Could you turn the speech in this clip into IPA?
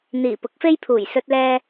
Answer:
n̪iː˨˩ pʊ˨˥k̚fe˥jpʰuː˨˩j sɵ˧t̚lɛː˧

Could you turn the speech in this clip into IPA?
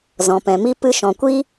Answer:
zɔ̃˨pɛ̃˨mi˦ pɨ˧ʃɔ̃˨kʷi˦

